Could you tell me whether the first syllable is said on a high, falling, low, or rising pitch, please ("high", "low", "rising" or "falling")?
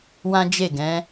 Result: high